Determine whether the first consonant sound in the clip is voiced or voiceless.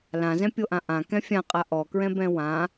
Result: voiced